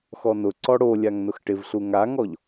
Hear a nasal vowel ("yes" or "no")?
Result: no